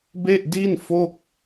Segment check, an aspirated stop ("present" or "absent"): absent